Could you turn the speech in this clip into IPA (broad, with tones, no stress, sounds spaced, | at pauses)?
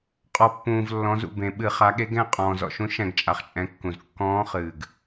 qʼ ɔ˩ pː ũː˩ v lː ɔ̃˩˧ z ṵ˩ b ẽ˩ ɓ ɨ˧˩˧ χ a˩˧ ɠ e˧˥ ɡ ɛ̃˥˨ qʼ ɔ̃ː˩ z ɔ̰˩ ʃ ũ˧˥ ʃ ɛ̃˧˩˧ ɡ t͡ʃʼ a˩ χ t͡ʃʼ ɛ̃˩˧ kː ũ˩ z kː ɔ̃ː˧˥ χ ɨː˩ ɡ